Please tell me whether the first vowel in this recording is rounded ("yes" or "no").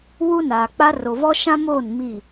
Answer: yes